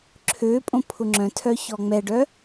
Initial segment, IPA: ǁʰ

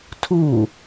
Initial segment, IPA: tʰ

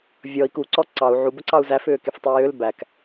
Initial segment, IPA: vʲ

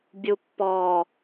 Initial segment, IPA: bʲ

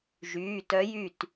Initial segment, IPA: ʒ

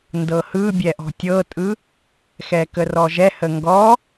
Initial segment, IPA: n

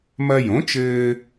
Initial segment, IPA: m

